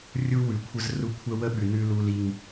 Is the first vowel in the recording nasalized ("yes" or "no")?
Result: no